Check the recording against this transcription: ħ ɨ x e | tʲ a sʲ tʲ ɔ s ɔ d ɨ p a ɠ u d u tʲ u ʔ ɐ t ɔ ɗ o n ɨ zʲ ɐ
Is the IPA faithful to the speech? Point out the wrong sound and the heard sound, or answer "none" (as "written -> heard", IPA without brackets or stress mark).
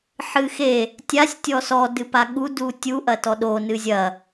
none